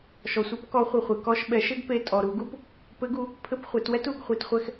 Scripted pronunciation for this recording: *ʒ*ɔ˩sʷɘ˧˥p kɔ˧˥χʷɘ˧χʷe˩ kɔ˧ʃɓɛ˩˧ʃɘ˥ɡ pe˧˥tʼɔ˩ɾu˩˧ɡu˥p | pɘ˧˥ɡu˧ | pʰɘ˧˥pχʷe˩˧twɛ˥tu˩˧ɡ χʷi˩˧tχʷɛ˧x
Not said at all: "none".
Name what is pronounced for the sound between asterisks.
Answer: ʃ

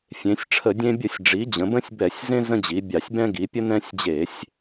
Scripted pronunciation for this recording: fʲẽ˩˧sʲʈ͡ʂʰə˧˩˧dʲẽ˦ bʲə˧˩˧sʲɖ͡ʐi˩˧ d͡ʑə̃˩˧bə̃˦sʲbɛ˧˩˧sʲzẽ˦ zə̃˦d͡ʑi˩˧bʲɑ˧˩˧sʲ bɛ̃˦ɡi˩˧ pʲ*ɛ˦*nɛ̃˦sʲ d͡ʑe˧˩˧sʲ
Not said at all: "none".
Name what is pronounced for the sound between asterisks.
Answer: ə˦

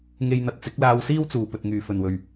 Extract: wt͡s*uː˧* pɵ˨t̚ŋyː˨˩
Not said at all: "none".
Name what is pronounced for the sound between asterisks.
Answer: uː˨˩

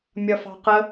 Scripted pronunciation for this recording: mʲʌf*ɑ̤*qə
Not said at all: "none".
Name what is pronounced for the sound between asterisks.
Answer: ɑ̤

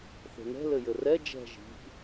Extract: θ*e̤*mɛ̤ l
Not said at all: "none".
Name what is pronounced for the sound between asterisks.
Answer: e̤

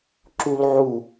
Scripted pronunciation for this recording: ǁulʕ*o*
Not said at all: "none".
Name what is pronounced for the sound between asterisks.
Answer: u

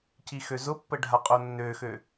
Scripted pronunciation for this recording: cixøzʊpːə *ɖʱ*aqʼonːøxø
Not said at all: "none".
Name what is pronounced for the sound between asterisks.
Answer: ɖʱ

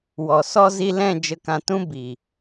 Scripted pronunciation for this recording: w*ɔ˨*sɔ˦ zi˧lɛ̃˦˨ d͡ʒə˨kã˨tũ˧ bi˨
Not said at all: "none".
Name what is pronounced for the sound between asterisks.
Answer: ɔ˨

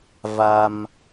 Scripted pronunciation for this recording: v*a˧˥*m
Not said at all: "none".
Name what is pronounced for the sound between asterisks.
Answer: a˧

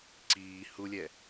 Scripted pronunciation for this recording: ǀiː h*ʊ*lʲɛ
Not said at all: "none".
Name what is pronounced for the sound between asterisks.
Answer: u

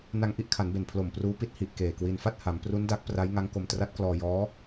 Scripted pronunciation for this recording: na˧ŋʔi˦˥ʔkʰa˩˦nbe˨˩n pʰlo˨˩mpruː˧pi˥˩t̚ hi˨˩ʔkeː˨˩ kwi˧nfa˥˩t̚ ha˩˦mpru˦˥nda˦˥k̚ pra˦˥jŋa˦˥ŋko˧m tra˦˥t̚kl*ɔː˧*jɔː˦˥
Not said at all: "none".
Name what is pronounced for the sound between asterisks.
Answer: ɔː˧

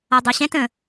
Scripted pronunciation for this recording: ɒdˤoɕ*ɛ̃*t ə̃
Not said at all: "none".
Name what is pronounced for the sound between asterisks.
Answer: ɛ̃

